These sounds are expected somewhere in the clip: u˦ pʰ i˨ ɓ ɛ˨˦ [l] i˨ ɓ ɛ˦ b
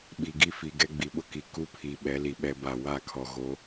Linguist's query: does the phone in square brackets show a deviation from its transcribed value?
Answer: no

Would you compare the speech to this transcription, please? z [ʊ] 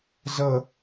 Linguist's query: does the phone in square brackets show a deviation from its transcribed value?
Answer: yes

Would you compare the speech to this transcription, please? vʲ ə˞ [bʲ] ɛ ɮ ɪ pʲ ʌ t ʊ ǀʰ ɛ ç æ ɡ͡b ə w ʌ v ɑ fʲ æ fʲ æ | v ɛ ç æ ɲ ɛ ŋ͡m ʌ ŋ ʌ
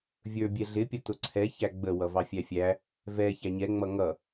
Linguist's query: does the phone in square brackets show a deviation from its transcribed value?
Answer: no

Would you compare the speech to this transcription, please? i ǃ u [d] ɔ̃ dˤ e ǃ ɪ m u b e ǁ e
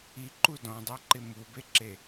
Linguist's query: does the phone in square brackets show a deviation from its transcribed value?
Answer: no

